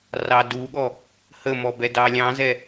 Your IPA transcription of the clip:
rɑduɠɔ | həmɔ bɛdɑlʲɑ̃zɛ

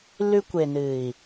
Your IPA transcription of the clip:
lʉ˧kʷe˨nɨ˨i̯

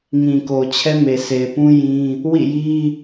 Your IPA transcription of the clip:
ŋĩ˨ko˨ t͡ɕʰɛ˦me˨se˨ɪ̯pũ˦ jĩ˦ | wḭ˦˨ji˦

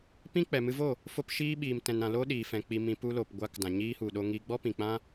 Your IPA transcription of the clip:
pĩ˦k͡pɛ˨ mɨ˧vo˦˨ | fo˧pʃiː˧ ɓiː˨mtɛ̃˨nɾã˨ lo˦ɗiː˨fɛ̃˨ k͡pi˧mĩ˧ pu˧lo˨pɡʷa˧k dã˨ɲiː˧hu˨ ɗo˧ŋi˧ɡ͡bɔ˦ pĩ˨k͡pã˦

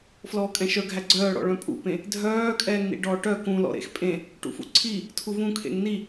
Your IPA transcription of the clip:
flɔːkʼɛ̃ʃœɡʱæ ɡ͡ǀœːɽɔ̰ ɭœ̃pʼṵpẽ | dʱœː kʼɛːŋnḭɖɔːʈœ kũlɔ̰ ɾḛxpʼẽ | ʈṵfṵǀʰi | tʰuvũkʰḛŋ ni

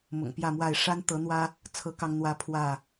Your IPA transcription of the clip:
mʊ̰˨˩ŋpjä˥˨mwa˥˨ɪ̯ ʂa˦nt̪ɤ˨˦n̪wä˦ | t͡sʰɤ˦kɑ˦ŋn̪wä˦ pʰwä˥˨

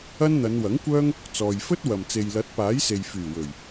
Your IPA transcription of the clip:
ɐ˥nn̪ɐ˨˧n wɐ˨˥ŋkʷœː˥ŋ | t͡sɔː˨j fɵ˥t̚wɐ˨m t͡se˨jlɐ˨˥t̚paː˨˥jse˨j fyː˨˩wɵ˨˩ɥ

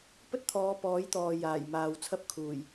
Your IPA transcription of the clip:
pɵ˥t̚t̪ʰɔː˨˧ pɔː˨˥jt̪ɔː˨ jaː˨˩j maː˨wt͡sʰɐ˥p̚kʰuː˨˩j

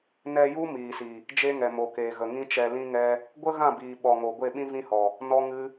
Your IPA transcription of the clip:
nɛ˧ju˦ miː˨si˨ | d͡ʒe˦ŋɛ˨mo˨keː˨ ɣə˨ŋĩ˦t͡ʃɛ˧ lĩ˦ŋɛ˦ | ɡʷə˦ɣã˦˨biː˨ ɓɔ˨ŋo˨ ɡʷe˦˨ɓĩ˦vĩ˦hɔ˨ | nɔ˦ŋɨ˦

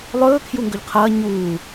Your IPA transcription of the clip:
lˠɵː kʰjuŋɡɵʎqʰɐː ɲuː

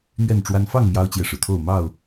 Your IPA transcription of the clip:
n̪ɥɛ˥˨nʈ͡ʂwa˦n fɑ˥˨ŋ mjɑ˦ʊ̯t͡ɕjɛ˨ʂɻ̩˩t̪ʰo˥˨ʊ̯ mɑ˥˨ʊ̯

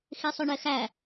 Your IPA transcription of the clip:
xesˤɵɳɛxæ

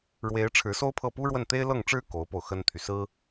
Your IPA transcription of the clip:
ɻwe˧˥ɪ̯ ʈ͡ʂʰɻ̩˧˥so˥ʊ̯pʰɤ˥˩pu˥ ɻwə˥˩nt̪e˥ɪ̯ lɤ˥˩ŋʈ͡ʂɻ̩˥ ko˧˥ʊ̯po˧ʊ̯ xə˥nt̪ʰy˨sɹ̩˥

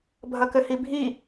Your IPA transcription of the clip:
bʱɐkɘhibʱi

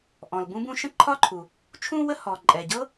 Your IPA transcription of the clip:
ʔɔ̃˩l bũ˥bũ˥ ʃə̃˥ǃʰɒ˥ǃʰu˩ | t͡ʃʰũ˥wə˥ hɔ˩ ǃʼɛ˩ɟɤ˥

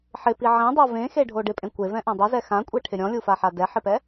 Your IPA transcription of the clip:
ħɪpi ʕẽdˤo vẽxeɖʱo ɖɪpʼẽ kʷevɛ̃ʔẽ dˤizɛ xãkʷʼeʈʰɪ ɾʲɔ̃lʲufaħa dɛħɪpɛ

